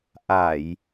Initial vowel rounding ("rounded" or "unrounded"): unrounded